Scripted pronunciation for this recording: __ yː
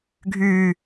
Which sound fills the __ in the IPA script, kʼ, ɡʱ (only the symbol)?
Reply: ɡʱ